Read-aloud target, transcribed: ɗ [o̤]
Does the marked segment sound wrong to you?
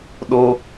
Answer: yes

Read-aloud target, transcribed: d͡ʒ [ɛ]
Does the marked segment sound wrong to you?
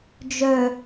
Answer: yes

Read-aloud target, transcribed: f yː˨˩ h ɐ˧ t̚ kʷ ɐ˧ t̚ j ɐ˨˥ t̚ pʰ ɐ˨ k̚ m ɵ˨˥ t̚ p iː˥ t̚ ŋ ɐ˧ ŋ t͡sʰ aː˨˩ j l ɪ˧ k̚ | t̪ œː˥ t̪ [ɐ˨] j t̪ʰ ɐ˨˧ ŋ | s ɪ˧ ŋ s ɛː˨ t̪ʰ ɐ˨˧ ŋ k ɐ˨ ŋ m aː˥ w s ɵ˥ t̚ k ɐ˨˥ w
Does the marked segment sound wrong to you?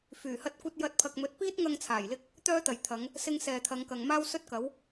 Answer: no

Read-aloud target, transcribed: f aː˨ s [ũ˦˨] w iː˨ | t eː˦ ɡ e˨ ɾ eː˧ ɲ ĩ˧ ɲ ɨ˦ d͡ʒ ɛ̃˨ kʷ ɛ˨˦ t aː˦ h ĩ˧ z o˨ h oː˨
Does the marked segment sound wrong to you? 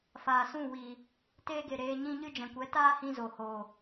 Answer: no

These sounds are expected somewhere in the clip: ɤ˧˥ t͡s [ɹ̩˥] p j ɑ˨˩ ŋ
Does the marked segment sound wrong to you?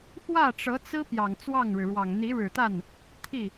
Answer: no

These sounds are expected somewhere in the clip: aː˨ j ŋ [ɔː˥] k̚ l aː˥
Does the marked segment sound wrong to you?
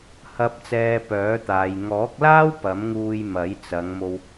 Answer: yes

